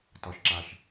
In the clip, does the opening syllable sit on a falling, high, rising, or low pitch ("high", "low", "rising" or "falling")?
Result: high